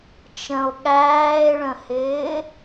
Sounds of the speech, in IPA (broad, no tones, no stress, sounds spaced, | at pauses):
t͡ʃ ə̃ o̯ ɠ æː e̯ ɭ ə̃ h ɪː